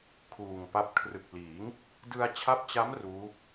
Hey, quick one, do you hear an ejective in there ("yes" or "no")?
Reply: no